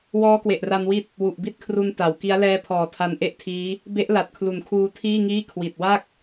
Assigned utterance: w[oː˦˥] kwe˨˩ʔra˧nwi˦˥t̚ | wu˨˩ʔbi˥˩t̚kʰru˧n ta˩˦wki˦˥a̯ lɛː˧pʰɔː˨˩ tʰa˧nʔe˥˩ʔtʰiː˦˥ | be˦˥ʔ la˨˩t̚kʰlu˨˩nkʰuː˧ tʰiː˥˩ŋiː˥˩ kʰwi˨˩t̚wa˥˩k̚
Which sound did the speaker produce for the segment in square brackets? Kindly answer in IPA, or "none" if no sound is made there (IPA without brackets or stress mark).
ɔː˦˥